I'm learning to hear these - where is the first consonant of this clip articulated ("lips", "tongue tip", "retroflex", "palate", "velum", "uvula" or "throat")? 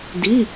tongue tip